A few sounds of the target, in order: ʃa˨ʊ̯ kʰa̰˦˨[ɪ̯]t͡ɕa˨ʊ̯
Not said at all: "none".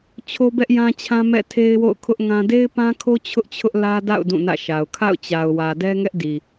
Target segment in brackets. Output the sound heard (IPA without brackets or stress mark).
ʊ̯